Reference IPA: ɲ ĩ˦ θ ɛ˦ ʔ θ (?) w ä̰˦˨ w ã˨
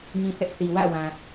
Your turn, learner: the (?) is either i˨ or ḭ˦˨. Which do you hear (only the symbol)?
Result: i˨